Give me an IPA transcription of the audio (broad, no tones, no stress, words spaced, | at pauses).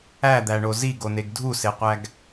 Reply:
æd̪æɳo ziɡoneɡ dʱuseqʷæɡ